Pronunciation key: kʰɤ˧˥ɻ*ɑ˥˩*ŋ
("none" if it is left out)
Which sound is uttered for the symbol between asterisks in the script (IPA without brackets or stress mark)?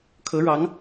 ɑ˧˥